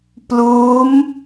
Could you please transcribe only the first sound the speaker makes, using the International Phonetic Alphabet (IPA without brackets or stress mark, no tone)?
p